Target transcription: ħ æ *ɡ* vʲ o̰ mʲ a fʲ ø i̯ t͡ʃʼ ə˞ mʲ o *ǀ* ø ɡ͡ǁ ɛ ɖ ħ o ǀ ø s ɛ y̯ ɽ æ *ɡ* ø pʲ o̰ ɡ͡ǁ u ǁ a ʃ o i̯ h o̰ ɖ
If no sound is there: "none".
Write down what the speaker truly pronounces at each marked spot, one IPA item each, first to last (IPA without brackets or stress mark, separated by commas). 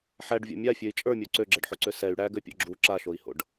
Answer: ɖ, ǀ, ɡ